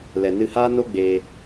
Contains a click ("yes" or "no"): no